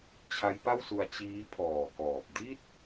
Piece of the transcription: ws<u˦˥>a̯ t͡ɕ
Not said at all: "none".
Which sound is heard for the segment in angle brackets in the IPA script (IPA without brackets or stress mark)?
u˧